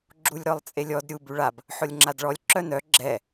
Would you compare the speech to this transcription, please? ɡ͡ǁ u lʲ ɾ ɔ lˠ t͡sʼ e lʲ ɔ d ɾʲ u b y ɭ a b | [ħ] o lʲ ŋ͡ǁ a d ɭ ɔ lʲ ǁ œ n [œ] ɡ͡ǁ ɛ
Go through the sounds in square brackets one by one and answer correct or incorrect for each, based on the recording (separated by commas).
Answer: correct, correct